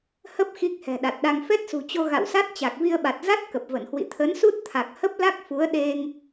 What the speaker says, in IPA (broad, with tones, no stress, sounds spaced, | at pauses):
h ə˦˥ p̚ x i˦˥ k̚ h ɛ̤˨˩ ɗ a˨˩ t̚ ɗ a˧ ŋ f ɛ˦˥ t̚ s ṳ˨˩ t͡ɕ o˧ ɣ a̰˧˨ w s a˦˥ t̚ t͡ɕ a˨˩ k̚ v i˧ ə̯ ɓ a˨˩ t̚ z a˦˥ t̚ k ə˨˩ p̚ v ə˧˩ n h w ḭ˧˨ t̪ʰ ə˨˦ n s u˦˥ t̚ t̪ʰ a˨˩ k̚ h ə˦˥ p̚ l a˦˥ k̚ f u˨˦ ə̯ ɗ e˧ ŋ